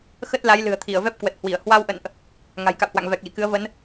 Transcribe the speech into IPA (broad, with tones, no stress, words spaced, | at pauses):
xə˦˥t̚ la˨˦jlɨ̤˨˩ə̯t̪ʰi˧˩ə̯ vɛ˦˥p̚kwə˨˩t̚hwi˧˩ə̯ hwa˧wʔə̰˧˨nʔ | ŋa̤˨˩jka̰˧˨whwa̰˧˨ŋ vɛ˨˩k̚lḭ˧˨kɨ˨˦ə̯ və˨˦n